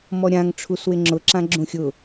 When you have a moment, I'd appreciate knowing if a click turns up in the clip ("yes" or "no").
yes